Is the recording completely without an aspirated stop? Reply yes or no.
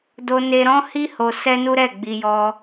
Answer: yes